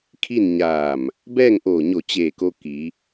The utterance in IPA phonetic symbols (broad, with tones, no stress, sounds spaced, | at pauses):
kʰ i˥˨ n ɲ aː˧˩ m | b ɛː˥˨ ŋ ʔ oː˧˩ ɲ o˧˩ t͡ɕ eː˧˩ k o˧ k i˩˧